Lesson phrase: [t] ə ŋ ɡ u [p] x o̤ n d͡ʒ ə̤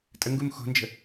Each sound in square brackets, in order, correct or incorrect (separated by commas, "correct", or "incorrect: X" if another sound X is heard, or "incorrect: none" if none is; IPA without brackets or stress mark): incorrect: tʼ, incorrect: m